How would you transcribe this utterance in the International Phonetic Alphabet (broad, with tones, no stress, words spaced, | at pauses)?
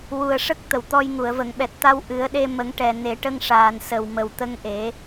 wu˨˩ə̯ʂə˦˥k̚ t̪ə˨˩˨wt̪ɔ˧jŋu˨˩˨ə̯ və˨˩˨ŋɓɛ˨˩t̚t̪a˧w ʔɨ˨˩˦ə̯ɗe˧ mə˨˩˦ŋʈɛ˨˩˨ne˨˩˦ ʈə˧ŋʂaː˨˩n sə˨˩wmə˨˩wt̪ə˧˥ŋʔe˨˩˦